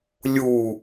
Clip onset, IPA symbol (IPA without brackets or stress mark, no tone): lʲ